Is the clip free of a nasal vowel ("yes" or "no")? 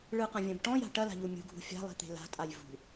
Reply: no